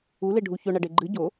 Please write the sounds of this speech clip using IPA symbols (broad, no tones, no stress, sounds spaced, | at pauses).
u l e ɖʱ u ç ɵ ɳ ɐ ɖ e ɡ͡ǃ ɨ ɟ o